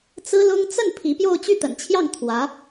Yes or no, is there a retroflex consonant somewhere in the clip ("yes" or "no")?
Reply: no